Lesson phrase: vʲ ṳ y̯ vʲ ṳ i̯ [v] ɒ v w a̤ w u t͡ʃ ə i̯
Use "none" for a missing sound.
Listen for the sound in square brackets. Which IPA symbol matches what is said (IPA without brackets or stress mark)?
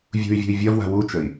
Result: vʲ